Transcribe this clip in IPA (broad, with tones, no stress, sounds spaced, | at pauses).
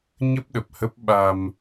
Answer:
ɲ ə˦˥ p̚ ɗ ə˨˩ p̚ h ə˦˥ p̚ ɓ a˧ m